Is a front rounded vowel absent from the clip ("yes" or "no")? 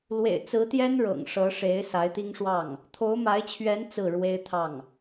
yes